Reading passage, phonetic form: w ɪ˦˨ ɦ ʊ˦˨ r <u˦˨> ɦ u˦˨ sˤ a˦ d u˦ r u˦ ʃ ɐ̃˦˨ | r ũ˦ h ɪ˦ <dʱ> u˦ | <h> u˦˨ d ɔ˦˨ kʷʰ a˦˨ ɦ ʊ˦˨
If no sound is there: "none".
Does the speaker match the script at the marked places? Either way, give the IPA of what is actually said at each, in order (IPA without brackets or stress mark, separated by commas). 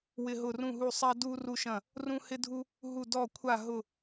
ũ˦˨, dʱ, ɦ